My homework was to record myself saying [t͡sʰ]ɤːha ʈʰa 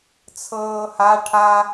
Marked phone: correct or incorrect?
correct